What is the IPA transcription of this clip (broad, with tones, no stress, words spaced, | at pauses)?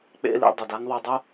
k͡pḛ˦lḭ˧ dˤu˨da˦ŋðˤo˧dˤu˦